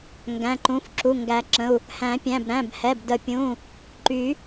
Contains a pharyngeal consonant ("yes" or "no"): no